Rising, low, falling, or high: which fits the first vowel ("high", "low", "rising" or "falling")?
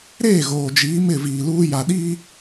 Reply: falling